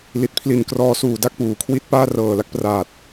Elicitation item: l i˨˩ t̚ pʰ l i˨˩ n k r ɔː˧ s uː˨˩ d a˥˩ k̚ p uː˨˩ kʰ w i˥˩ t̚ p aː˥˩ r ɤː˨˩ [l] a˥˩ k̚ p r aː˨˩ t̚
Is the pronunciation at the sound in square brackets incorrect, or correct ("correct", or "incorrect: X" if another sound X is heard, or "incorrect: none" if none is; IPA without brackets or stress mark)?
correct